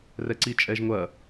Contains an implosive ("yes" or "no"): no